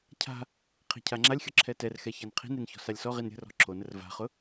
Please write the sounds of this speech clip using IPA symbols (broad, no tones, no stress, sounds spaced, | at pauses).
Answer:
cʰ a̤ | qʰ i̤ cʰ a ŋ͡ǁ a lʲ xʲ ʊ ǁʰ ɛ t ɛ r x ɛ ç a n qʰ i̤ n ɾ i n ç ɔ̤ s a lʲ s ɔ ʁ i n ɾʲ ə̤ r ɔ̤ ǁʰ o n ə r v a̤ χ ʊ